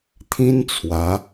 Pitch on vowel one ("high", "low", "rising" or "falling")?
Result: high